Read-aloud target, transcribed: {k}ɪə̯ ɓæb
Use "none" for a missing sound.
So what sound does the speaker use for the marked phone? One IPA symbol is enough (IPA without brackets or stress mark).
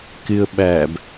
k